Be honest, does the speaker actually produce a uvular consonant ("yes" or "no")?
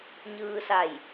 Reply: no